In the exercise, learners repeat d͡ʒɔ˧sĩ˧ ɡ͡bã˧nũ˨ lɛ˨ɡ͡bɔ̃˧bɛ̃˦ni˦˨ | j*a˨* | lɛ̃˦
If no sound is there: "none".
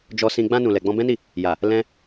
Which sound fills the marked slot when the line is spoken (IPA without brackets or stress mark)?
a˨